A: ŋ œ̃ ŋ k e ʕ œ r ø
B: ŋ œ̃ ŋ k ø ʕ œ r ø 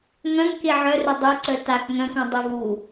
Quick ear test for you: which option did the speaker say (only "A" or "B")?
A